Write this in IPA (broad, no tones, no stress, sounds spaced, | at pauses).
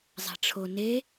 zˤ ɛ̤ ʈ͡ʂʰ o n e